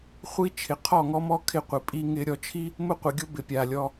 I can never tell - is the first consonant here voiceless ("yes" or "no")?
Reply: yes